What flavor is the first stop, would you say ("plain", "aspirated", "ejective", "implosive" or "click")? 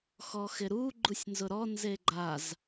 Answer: click